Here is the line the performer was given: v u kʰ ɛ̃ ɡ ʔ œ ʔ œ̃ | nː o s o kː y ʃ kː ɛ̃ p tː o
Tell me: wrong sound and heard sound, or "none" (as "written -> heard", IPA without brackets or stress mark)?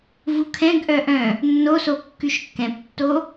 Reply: none